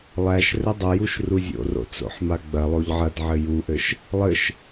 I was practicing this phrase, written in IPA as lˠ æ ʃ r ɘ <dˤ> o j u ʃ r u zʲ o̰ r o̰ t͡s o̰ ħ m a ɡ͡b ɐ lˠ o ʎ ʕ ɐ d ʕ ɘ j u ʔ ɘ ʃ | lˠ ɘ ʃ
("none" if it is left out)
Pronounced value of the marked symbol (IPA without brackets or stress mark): dˤ